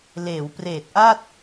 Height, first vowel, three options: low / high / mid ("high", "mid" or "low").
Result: mid